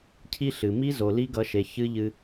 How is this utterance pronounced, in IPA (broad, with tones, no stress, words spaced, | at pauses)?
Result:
cʰi˦ɬɨ˨ mi˦zo˨ li˦ɡʌ˨˦ʃe˨ çɨ˦ʎɨ˦